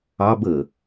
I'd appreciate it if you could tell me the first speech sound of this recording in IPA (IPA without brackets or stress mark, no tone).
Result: ɑ